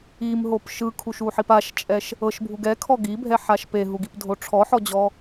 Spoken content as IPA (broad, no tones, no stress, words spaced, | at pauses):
imɦop ʃɯkʰuʃuħip aʃt͡ʃʼɛʃ | ɤʃbʱuɡ ɛkʰɔ ɡibʱɛħaʃ peɦuɡipdʱo ʈ͡ʂʰɔħɔd͡ʑɔ